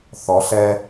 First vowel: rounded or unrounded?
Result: rounded